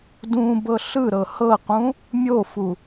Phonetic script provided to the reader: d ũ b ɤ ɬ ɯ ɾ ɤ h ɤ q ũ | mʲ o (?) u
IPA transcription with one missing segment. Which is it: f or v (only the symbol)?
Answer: f